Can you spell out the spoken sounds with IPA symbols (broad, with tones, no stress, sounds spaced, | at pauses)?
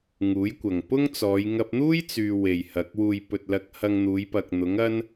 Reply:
ŋ uː˨˥ j kʷ ɐ˨ ŋ p ʊ˥ ŋ t͡s ɔː˨˧ j ŋ ɐ˧ p̚ n̪ uː˥ j t͡s yː˧ w e˨ j h ɐ˨˥ k̚ w uː˨ j p ɵ˨ t̚ l ɐ˨˥ k̚ h ɐ˧ ŋ n̪ uː˨˧ j p ɐ˨ k̚ n̪ ʊ˨˥ ŋ ɐ˥ n